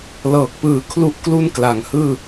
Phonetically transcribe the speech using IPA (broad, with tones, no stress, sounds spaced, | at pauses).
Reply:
l ɤː˨˩ k̚ p ɯː˨˩ kʰ l u˥˩ ʔ k l u˥˩ n k l a˩˦ ŋ h ɯː˥˩